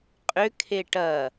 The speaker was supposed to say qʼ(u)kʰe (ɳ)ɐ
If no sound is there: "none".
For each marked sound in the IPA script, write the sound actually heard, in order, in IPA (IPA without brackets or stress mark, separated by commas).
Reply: ʏ, ʈ